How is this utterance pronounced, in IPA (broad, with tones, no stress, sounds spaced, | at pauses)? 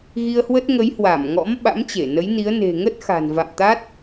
ɣ i˧ ə̯ h w ə˦˥ t̚ ŋ ə˨˦ j h w a˧˩ m ŋ ɔ̰˧˥ m ɓ a̰˧˥ m t͡ɕ e˧˩ n ə˨˦ j n i˨˦ ə̯ n e̤˨˩ ŋ ə˦˥ t̚ x a̤˨˩ n v a̰˧˨ m t̪ a˦˥ t̚